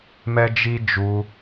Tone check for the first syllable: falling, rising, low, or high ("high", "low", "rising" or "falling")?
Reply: high